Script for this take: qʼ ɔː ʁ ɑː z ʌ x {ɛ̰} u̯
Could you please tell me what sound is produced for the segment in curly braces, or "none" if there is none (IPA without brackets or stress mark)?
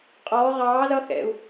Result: ɛ̰